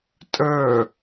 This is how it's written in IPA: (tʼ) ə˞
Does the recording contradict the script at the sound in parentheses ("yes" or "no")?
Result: no